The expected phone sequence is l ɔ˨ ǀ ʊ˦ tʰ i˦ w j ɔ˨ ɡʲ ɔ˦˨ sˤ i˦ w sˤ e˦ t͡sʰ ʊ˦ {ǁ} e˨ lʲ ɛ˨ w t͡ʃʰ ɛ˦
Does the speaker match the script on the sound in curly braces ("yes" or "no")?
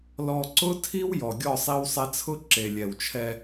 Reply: yes